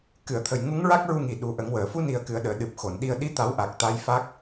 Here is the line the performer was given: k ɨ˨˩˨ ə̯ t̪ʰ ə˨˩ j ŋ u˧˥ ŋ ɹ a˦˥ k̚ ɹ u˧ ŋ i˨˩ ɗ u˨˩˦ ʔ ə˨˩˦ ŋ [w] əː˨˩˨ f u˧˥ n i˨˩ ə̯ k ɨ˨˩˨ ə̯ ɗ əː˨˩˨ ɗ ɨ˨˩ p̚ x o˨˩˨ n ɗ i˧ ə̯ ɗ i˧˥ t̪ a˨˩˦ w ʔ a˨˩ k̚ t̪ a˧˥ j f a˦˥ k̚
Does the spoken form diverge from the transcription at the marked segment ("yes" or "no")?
no